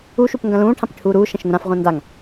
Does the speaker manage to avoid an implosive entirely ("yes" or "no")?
yes